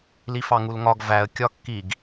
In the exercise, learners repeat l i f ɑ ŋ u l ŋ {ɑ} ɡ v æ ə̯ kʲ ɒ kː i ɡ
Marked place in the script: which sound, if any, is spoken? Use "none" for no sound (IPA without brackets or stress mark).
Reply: ɒ